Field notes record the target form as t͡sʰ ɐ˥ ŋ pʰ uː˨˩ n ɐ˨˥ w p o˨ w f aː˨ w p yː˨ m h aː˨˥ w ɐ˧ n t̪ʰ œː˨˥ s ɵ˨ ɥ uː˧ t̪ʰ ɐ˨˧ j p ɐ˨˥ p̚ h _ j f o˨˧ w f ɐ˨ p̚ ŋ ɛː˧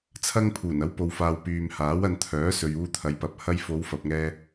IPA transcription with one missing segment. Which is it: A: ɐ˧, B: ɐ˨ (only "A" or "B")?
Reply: A